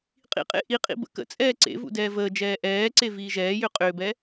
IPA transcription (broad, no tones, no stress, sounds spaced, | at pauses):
qʼ ḭ qʼ ḛ ʔ i qʼ ḭ b ə̰ k ə̰ t͡sʼ ɛː ǀ ḛ v ṵ d ɛː v əː d͡ʒ ɛː ʔ ɛː ǀ e v iː ʒ ɛː j ʏ qʼ ʏː b ɛ